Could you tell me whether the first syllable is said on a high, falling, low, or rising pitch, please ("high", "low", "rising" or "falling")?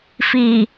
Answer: low